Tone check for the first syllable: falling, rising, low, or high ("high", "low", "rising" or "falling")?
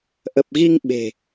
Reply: low